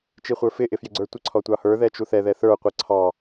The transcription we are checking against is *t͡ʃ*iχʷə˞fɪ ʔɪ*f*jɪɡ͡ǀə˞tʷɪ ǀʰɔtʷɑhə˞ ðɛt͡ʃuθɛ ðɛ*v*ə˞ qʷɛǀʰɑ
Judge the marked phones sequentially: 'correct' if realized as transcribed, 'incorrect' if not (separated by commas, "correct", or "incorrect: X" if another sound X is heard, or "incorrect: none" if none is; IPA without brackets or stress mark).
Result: correct, correct, incorrect: θ